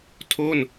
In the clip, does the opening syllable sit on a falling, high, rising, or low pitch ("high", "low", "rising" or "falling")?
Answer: falling